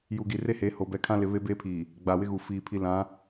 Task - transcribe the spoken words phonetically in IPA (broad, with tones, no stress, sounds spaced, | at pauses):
j u˨ ɡ i˨ r e˦ h e˨˦ h o˨ b ɛ˨ kʰ ã˦ l ɪ˨ β e˦ b eː˦ pʰ iː˨ | ɡ͡b a˨ w ɪ˦ ɣ u˨ f iː˨ pʰ i˦ l ã˨˦